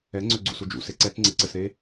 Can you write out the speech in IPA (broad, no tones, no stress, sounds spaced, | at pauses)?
ɛ ŋ͡ǀ ø ɡ͡ǀ ṵ s u d͡ʒ ṵ s e ǀ ɛ t͡s ŋ͡ǀ e ǀ ɘ s ɾ e